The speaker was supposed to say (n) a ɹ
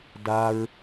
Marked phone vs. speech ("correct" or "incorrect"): incorrect